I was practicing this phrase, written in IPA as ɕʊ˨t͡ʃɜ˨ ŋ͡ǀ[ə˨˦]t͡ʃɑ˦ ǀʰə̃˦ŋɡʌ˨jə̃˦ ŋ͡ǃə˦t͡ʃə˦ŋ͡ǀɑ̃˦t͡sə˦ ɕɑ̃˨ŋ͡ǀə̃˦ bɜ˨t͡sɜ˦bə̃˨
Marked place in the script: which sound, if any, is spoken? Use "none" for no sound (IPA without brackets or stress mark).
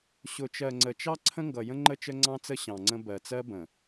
ə˨